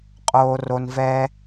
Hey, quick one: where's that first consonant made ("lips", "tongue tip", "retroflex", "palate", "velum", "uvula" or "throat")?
uvula